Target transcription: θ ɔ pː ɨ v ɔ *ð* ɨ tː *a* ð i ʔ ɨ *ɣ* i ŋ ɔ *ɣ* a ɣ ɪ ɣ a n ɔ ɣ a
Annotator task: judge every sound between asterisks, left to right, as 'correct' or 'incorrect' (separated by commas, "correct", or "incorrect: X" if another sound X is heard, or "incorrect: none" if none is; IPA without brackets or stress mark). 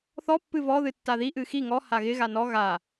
correct, correct, incorrect: x, incorrect: h